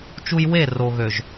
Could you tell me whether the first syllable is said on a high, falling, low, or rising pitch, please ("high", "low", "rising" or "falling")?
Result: high